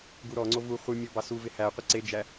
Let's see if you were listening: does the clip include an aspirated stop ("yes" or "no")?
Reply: no